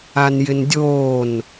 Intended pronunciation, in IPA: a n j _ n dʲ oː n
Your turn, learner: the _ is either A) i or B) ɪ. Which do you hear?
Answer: B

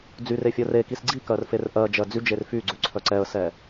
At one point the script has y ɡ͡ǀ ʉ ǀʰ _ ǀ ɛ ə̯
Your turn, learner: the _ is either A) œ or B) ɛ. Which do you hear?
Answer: A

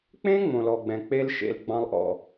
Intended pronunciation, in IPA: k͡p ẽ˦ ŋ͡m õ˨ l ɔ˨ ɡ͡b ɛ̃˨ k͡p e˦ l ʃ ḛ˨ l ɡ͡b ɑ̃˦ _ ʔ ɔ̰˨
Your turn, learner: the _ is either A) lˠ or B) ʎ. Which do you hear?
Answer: A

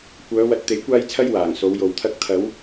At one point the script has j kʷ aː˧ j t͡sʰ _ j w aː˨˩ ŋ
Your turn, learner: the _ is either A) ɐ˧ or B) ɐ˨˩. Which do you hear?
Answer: A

